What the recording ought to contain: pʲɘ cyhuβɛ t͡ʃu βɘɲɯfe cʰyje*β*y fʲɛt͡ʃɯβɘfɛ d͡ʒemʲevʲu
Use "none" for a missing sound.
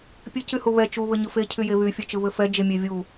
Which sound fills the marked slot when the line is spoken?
β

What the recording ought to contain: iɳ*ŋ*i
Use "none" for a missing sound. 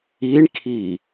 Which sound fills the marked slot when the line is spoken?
kʰ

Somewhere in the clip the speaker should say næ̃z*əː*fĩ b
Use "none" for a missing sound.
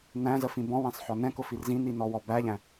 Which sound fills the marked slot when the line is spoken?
ə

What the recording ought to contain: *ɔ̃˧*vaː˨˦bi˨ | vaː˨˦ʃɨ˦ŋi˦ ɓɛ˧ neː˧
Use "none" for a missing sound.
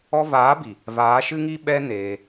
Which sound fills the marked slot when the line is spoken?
ɔ˧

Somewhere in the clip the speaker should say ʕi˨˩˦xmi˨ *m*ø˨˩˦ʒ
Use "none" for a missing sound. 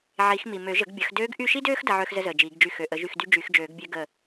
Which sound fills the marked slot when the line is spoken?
m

